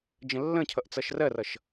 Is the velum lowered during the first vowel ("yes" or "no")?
yes